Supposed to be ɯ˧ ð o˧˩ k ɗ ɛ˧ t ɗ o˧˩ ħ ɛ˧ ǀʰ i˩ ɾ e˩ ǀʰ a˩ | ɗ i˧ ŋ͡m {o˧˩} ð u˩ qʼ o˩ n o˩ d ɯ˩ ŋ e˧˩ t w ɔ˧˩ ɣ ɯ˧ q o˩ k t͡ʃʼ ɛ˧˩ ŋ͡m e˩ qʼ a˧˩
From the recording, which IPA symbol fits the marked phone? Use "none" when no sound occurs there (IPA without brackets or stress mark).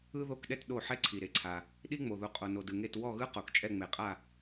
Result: o˩